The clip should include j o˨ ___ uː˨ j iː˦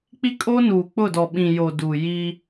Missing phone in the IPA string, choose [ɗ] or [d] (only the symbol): d